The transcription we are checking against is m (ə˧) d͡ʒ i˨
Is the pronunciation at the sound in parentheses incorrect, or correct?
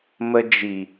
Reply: correct